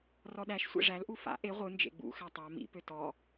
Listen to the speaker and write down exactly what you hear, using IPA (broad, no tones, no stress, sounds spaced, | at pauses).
r ɔ ɗ æ ʃ sʷ ḛ ʐ æ l ʔ u f a̰ ʔ e ʁʷ ɯ n d͡ʒ ḛ ɡ͡b ṵ x æ tˤ a m ḭ p ø t ɔ